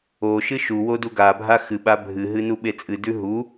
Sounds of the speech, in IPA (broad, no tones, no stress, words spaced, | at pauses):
oʃɨ ʃuwo duɡabʱa xɨɓa bʱɨɦɨ nuɓet͡sʼɨdʉ ɦu